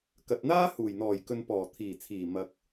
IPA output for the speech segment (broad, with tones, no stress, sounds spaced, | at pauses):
k ɐ˨ t̚ n̪ aː˥ h uː˨˩ j n̪ ɔː˨˩ j k ɵ˨ n p ɔː˨˩ t̪ʰ iː˨˩ t͡sʰ iː˨˩ m ɐ˨ k̚